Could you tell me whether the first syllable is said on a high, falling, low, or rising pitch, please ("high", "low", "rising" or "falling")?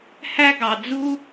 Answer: high